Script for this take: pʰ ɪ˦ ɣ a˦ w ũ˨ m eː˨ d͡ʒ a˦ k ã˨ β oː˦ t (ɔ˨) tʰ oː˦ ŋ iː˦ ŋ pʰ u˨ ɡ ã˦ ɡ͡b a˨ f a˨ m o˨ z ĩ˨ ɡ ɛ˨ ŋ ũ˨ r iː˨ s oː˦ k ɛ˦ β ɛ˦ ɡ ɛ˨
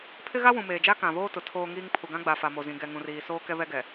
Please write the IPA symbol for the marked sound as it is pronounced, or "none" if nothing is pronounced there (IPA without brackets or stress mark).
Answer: ʊ˨